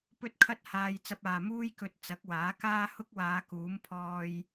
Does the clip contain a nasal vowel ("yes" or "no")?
no